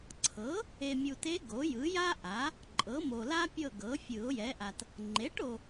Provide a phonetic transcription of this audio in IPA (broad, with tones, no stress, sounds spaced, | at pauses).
ǀʰ ɤ˩˥ | e˨ mʲ u˨ t e˧˥ ɡ o˩˥ j ɯ˩˥ j a˥ ʔ a˩˥ | ǃʼ ɤ˩˥ m o˨ l a˥ pʲ ɤ˦˨ ɡ ɤ˩˥ fʲ ɯ˨˩˦ ʊ̯ j ɛ˩˥ ʔ a˨ t | ŋ͡ǃ e˩˥ ʈ o˨